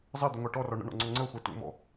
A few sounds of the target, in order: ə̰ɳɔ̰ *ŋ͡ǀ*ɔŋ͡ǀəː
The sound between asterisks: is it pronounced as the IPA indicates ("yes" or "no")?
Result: yes